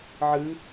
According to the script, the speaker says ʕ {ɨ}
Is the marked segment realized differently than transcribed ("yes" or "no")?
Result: no